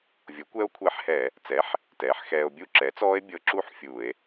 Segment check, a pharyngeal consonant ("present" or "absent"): present